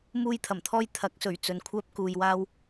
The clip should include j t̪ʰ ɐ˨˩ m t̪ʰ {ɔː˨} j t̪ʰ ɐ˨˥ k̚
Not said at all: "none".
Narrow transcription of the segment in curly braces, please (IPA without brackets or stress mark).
ɔː˧